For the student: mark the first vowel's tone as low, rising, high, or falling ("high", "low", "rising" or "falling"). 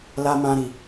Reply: high